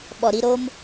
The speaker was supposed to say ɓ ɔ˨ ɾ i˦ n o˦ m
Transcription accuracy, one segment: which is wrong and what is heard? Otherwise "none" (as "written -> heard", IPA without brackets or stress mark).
n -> ɾ